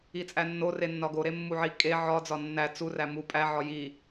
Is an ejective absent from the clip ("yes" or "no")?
no